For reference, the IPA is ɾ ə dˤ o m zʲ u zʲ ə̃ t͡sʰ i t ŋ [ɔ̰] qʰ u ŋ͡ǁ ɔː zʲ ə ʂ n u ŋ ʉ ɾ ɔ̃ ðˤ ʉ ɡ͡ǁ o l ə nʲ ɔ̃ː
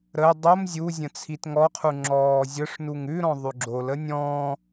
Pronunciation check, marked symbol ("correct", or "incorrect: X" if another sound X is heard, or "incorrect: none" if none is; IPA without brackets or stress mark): incorrect: ɔ